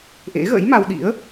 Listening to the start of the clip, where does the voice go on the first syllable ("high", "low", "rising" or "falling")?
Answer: rising